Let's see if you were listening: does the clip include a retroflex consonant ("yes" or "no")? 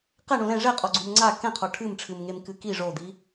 yes